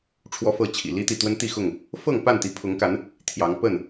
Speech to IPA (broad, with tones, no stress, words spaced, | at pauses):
ʈ͡ʂʰwɔ˦fɤ˥˨t͡ɕʰḭ˨˩ li˦t̪i˨ t̪wə˦nt̪i˥˨xʊ˥˨ŋ | fɤ˥˨ŋ pa˥˨nt̪i˨˦pʰʊ˨˦ŋka˨˦n | t̪ʰjɑ˨˦ŋ pə˥˨n